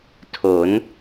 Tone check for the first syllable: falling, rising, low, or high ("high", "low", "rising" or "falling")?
rising